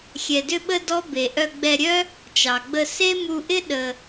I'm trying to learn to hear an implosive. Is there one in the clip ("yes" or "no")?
yes